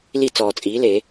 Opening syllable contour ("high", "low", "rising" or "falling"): falling